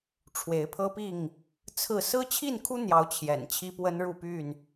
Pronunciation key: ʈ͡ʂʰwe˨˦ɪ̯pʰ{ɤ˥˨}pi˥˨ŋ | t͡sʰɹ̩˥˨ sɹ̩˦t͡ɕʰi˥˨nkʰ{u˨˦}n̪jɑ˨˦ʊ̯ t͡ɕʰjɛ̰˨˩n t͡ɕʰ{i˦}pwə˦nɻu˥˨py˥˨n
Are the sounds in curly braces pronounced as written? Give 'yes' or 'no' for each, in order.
no, no, yes

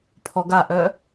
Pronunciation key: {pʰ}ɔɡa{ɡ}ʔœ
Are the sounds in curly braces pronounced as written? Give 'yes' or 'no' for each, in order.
yes, no

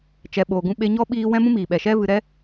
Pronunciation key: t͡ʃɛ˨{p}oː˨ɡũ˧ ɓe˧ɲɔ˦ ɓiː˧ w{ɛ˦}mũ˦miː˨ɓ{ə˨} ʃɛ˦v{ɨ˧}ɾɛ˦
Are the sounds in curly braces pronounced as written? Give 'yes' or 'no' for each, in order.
no, no, no, yes

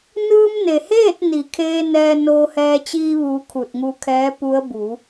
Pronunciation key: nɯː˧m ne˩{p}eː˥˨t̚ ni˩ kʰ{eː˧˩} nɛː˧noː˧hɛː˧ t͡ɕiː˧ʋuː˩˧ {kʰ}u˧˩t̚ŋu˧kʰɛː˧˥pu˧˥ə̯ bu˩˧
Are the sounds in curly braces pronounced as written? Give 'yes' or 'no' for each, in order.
no, no, yes

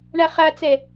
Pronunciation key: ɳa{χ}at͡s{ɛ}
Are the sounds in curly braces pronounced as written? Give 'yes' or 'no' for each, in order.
yes, yes

